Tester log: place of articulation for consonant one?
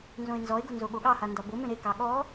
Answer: alveolar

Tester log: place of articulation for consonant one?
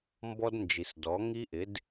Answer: labial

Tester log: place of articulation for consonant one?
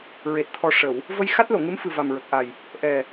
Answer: alveolar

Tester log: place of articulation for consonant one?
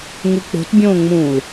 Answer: velar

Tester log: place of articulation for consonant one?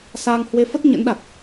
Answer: alveolar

